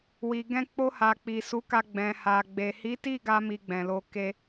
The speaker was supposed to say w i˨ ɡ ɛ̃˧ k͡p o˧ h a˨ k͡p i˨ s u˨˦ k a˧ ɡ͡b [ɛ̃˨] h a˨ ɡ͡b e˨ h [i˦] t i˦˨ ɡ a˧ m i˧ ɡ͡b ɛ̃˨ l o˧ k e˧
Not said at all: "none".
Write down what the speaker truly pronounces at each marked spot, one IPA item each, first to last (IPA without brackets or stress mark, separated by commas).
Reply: ɛ̃˨, i˨˦